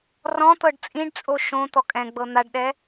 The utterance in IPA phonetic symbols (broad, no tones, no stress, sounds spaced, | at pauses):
r ɔ̃ t̪ ɤ ɖ t͡sʼ ĩ ɖ t͡sʼ o ʃ õ t̪ ɔ kʼ ɛ̃ ɡ͡b ɤ n̪ a ɖ ɗ ɛ